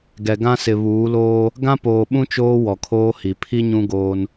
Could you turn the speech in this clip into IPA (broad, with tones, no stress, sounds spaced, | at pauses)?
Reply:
ɡ ɛ˨ ɡ ã˦ s ɪ˨ β uː˨˦ l oː˦ | ɡ ã˦ p oː˨ ɓ ũ˦ t͡ʃ oː˦ w ɔ˨ kʰ oː˦ h i˨ pʰ i˦ ɲ ũ˦ ɡ oː˦ n